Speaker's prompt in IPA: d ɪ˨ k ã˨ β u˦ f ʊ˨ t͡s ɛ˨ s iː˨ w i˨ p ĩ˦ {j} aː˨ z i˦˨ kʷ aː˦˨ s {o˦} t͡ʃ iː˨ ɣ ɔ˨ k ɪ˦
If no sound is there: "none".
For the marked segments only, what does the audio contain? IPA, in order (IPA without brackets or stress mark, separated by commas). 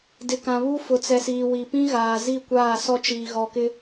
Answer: ɣ, ɔ˦